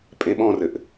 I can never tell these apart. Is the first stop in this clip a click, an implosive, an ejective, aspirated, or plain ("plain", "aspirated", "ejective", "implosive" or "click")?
ejective